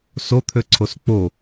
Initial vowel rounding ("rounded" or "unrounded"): rounded